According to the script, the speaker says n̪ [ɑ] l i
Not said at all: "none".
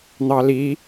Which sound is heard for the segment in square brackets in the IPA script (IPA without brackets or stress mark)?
ɑ